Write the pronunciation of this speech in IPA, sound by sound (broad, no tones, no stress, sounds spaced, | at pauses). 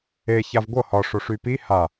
e ç a v ɡʷ ɤ h ɒ ʂ o ʂ y p i h a